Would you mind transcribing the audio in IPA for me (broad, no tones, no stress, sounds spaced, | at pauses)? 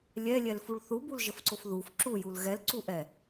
lʲ ɛ lʲ ɛ l f u ɭ θ u b u l ʒ ə f ǀ o f ð u f ǁ u j u l ɣ ɛ l ǀ u ʔ ɛ